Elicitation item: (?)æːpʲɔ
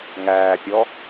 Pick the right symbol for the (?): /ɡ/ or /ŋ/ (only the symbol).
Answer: ŋ